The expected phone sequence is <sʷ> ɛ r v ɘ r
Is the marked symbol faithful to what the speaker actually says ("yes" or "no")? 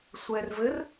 yes